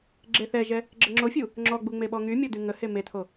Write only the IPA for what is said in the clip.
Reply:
ɡ͡ǁ e θ ɛ ʒ ɛ | ɡ͡ǁ ə ŋ͡ǁ o fʲ u | ŋ͡ǁ ɔ ɡ͡b u ŋ͡m e ɓ ɔ ŋ y mʲ ɔ d y ŋ ə h e m e tʰ o

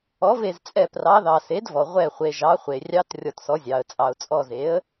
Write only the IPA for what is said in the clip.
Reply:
ɔ˩˥ v e˧˩ z t͡sʼ ɛ˧˩ p r ɑ˩˥ ð ɑ˩ s e˩˥ d v ɔ˩ ʁʷ ɛ˧˩ χʷ e˩ ʒ ɑ˩˥ χʷ e˩ rʲ ɑ˧˥ t rʲ ɔ˧˩ t s ɔ˩˥ zʲ ɑ˩ ə̯ t͡sʼ ɑ˩ ʊ̯ t͡sʼ ɔ˧˩ z e˩˥ ə̯

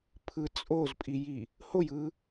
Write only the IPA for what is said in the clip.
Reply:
pʰ ɯ t͡sʼ o z pʼ i j i | h o j ɯ

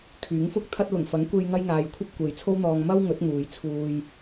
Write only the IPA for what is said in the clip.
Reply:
kʰ yː˨˥ ŋ f ʊ˥ k̚ t̪ʰ ɐ˥ t̚ l ʊ˨˩ ŋ f ɐ˨˥ ŋ kʷ e˧ j ŋ ɐ˥ j ŋ aː˧ j kʷʰ ɐ˥ p̚ kʷ e˨ j t͡sʰ o˥ w n̪ ɔː˧ ŋ m ɐ˥ w ŋ ɵ˨˥ t̚ ŋ uː˨˧ j t͡sʰ uː˧ j

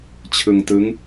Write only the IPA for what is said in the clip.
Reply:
t͡ɕʰ ɯ˧ ŋ t ɯ˦˥ ŋ

